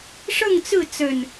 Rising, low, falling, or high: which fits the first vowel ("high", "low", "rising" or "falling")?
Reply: falling